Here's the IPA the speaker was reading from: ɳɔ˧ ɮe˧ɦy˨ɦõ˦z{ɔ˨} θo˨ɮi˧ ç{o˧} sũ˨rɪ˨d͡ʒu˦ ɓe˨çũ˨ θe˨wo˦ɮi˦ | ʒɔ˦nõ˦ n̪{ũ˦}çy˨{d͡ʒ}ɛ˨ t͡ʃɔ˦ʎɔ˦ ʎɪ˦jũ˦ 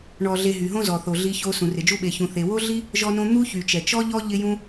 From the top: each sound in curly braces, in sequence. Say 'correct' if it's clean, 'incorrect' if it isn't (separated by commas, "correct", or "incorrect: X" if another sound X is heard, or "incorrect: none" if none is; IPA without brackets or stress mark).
correct, correct, incorrect: u˦, incorrect: t͡ʃ